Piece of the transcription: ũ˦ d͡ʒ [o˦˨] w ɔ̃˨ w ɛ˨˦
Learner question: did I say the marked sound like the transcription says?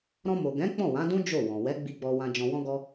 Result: yes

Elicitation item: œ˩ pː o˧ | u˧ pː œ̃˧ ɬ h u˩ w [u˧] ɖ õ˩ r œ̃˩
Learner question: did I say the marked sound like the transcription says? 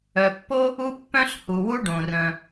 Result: yes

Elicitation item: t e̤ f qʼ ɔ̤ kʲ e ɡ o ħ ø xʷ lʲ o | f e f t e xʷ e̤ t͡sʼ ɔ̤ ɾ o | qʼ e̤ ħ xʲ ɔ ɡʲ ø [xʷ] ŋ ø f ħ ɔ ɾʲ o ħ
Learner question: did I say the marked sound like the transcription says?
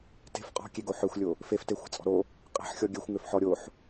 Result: yes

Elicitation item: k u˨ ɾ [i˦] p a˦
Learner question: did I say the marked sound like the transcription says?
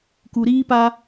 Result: no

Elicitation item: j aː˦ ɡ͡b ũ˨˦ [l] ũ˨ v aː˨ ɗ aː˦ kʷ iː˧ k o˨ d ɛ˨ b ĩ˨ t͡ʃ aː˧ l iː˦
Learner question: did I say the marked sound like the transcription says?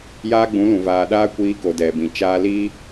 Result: yes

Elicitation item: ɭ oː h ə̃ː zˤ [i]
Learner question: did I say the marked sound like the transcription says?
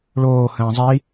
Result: yes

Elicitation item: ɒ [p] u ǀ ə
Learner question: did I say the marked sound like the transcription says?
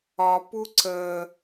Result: yes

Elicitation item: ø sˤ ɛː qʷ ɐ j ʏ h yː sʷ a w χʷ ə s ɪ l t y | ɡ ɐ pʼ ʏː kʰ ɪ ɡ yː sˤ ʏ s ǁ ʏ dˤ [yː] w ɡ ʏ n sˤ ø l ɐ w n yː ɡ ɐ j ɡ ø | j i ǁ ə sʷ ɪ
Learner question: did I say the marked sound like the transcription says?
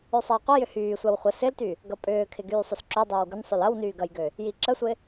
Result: no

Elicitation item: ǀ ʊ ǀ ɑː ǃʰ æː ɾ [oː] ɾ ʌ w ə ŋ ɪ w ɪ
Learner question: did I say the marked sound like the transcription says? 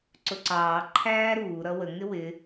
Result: no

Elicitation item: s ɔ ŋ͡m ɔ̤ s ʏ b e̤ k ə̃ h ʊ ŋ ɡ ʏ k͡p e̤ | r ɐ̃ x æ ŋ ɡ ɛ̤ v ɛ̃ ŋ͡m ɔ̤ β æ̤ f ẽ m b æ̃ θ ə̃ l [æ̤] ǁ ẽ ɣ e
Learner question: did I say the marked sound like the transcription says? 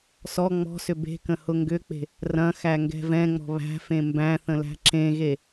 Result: yes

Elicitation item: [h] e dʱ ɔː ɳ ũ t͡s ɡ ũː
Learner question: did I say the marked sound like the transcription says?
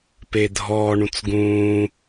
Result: no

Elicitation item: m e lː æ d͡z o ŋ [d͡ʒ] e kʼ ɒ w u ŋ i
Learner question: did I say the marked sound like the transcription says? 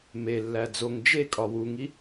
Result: yes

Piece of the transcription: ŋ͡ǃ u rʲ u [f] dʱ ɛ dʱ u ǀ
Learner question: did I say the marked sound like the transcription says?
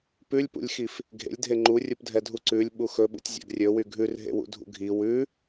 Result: no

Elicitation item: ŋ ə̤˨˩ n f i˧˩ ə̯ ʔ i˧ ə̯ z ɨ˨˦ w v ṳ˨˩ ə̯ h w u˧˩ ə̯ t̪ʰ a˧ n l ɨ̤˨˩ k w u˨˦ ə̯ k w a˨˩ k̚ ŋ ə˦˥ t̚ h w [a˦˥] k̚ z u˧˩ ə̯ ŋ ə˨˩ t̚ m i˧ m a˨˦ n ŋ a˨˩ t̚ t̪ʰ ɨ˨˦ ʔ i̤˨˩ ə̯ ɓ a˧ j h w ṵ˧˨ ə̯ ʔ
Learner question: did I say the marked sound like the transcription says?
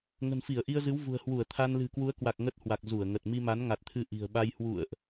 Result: no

